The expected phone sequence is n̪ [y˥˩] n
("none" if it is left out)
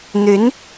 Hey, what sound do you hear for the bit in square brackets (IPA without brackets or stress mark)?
y˧˥